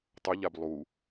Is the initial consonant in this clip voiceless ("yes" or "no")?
yes